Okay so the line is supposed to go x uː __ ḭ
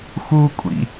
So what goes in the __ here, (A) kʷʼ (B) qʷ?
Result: A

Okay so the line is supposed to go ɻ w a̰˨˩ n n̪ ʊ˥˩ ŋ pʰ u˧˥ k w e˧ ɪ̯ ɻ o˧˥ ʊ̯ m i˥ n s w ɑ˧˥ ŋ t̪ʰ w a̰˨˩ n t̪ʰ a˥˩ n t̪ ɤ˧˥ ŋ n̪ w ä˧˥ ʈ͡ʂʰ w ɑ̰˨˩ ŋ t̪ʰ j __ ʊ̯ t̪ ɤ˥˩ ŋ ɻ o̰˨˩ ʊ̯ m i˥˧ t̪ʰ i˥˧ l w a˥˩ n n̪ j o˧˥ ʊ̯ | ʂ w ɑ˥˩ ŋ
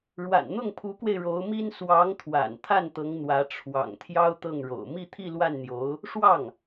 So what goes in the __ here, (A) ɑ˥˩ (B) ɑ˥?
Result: B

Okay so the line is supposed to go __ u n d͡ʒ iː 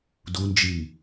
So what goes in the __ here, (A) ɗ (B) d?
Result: B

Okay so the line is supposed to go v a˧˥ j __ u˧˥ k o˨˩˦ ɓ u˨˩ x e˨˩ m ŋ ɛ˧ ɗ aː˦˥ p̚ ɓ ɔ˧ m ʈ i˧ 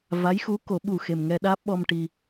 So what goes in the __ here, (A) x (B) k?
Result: A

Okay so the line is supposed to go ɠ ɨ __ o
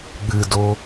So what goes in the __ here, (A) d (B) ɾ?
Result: A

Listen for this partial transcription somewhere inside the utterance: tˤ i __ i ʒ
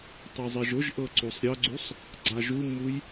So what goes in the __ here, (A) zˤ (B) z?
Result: A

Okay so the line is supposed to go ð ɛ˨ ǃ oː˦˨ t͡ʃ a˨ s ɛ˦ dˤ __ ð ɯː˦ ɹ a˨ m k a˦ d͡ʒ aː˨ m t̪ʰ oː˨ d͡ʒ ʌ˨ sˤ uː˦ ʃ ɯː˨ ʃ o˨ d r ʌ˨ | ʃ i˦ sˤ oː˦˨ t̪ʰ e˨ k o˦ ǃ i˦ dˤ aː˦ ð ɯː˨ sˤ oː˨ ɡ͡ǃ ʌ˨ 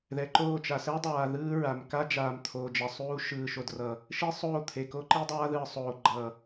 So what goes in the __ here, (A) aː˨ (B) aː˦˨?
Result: A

